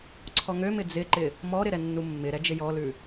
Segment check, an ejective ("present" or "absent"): absent